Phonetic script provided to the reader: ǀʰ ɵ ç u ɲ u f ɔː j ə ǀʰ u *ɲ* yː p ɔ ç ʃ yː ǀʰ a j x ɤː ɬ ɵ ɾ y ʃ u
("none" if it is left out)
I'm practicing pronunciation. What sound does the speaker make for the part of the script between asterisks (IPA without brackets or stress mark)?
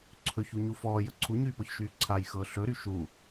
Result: ɲ